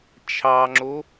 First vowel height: low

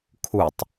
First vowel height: high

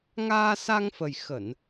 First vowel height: low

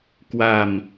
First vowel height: low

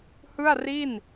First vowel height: high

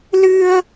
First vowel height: high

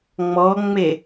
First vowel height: mid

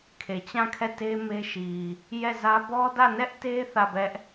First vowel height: mid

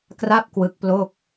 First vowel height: low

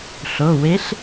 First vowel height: mid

